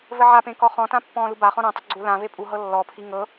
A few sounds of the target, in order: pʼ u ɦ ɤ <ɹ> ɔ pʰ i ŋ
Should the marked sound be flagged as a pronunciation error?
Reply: yes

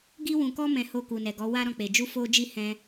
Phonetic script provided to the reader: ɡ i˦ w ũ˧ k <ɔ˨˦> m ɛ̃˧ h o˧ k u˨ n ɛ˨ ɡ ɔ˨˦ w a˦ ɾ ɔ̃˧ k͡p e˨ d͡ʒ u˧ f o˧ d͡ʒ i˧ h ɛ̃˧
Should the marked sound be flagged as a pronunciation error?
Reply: yes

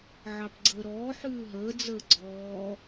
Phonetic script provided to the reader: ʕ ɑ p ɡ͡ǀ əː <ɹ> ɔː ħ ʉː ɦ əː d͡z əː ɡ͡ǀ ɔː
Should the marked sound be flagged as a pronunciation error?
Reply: yes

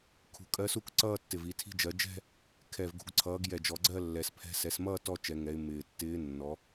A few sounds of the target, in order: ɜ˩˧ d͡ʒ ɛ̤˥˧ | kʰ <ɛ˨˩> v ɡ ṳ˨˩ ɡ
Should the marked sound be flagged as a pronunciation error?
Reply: no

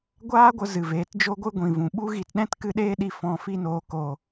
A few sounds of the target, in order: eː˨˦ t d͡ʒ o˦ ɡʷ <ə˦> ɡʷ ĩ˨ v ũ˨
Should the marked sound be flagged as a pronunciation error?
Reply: yes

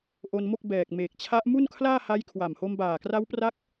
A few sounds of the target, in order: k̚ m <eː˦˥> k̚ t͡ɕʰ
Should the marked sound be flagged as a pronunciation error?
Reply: yes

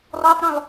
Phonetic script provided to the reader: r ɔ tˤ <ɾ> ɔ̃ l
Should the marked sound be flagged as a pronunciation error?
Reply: no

